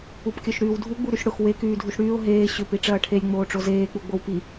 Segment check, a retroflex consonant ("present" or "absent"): present